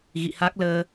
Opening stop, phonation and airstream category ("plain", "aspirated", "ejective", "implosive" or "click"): plain